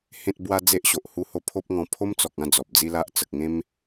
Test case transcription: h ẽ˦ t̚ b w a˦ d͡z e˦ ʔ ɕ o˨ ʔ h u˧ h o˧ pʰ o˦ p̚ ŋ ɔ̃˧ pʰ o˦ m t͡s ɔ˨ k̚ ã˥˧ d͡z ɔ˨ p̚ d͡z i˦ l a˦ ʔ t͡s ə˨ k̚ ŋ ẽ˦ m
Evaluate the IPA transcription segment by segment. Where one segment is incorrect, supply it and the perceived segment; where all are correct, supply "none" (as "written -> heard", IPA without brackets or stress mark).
none